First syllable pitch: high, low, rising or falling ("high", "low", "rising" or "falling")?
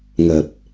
low